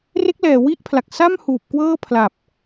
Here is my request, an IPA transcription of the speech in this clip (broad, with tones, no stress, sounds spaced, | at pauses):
r e˦˥ k̚ l ɛː˨˩ w i˦˥ ʔ pʰ l a˨˩ k̚ s a˥˩ m h uː˨˩ p̚ k w ɤː˥˩ pʰ l a˨˩ p̚